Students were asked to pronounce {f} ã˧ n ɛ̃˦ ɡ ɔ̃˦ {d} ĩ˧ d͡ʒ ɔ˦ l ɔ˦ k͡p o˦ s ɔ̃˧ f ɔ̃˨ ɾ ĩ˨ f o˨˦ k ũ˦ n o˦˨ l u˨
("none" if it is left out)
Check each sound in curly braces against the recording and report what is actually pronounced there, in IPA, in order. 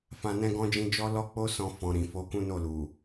f, d͡ʒ

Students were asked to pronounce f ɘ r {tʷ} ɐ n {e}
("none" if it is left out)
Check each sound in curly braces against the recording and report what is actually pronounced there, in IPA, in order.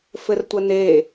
tʷ, e

